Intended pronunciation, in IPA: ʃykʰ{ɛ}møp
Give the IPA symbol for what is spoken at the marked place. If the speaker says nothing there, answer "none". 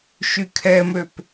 ɛ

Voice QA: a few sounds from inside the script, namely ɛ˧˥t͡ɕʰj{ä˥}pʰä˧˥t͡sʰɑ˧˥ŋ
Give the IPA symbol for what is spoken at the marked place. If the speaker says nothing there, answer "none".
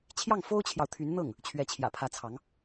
ä̰˨˩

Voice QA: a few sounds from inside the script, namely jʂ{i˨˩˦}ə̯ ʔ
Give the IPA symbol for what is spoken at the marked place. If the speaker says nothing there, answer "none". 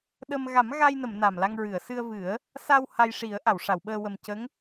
i˨˩˦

